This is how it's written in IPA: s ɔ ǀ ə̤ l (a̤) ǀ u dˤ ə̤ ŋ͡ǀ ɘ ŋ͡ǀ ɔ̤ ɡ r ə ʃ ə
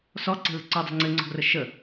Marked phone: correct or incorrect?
incorrect